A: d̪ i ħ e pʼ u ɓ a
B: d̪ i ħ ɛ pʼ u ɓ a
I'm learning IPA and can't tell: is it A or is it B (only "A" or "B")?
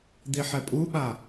B